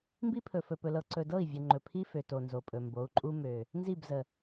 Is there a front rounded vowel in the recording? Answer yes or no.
yes